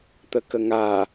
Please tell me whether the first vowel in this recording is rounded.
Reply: no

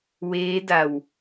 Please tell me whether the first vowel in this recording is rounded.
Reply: no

